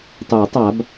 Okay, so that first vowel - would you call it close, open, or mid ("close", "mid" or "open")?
close